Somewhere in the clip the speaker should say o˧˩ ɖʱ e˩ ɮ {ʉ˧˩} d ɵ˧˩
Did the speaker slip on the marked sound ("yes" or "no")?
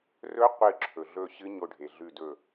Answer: no